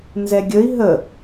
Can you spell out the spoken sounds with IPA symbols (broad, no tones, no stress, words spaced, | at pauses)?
nzɛɡʲəi̯ ɦə